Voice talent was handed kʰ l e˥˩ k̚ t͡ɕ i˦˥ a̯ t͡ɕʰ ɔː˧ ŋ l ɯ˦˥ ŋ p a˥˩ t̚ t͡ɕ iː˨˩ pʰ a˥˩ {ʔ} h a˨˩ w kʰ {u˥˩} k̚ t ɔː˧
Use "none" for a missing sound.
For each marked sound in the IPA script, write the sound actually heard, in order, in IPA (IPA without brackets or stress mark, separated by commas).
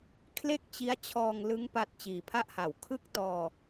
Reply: ʔ, ɯ˥˩